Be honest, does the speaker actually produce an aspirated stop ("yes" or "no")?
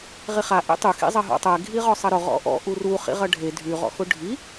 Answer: no